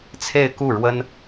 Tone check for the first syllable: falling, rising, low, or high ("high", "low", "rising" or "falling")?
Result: falling